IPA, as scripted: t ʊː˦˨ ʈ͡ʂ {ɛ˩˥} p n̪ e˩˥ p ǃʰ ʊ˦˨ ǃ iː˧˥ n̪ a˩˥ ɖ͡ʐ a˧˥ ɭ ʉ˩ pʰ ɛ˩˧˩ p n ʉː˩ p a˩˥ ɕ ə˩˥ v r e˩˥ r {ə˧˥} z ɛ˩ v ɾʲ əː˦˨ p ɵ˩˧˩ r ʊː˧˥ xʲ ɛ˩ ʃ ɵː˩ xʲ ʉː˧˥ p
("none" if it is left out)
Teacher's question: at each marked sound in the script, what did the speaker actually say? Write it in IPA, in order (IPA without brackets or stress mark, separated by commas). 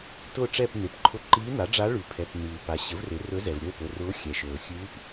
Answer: ɛ˦˨, ɵ˧˥